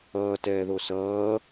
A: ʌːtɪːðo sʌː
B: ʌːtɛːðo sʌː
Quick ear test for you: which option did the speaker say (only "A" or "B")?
B